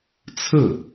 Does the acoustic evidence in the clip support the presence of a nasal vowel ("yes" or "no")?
no